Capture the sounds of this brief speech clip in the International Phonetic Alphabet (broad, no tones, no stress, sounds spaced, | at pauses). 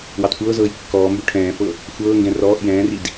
w ɑ t kʷ ɤː z ɤː j kː ɔː m b ø ʈʰ ɛ̃ː f ɤ | xʷ ɤː ŋ ɡ ɛ̃ r ɔː ʔ j ɛ̃ː r i d